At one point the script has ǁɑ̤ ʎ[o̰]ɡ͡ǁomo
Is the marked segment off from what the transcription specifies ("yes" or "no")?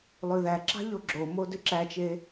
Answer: yes